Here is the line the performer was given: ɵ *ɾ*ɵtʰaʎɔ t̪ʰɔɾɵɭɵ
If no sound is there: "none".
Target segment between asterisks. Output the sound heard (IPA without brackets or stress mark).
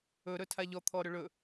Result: ɾ